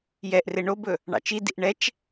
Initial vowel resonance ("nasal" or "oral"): oral